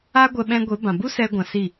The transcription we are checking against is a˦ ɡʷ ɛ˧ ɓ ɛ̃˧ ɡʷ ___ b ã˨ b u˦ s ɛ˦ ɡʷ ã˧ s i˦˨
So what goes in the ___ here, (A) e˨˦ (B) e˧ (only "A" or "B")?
A